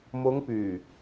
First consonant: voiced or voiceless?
voiced